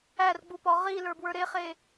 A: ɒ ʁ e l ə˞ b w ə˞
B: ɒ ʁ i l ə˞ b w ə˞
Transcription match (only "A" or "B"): B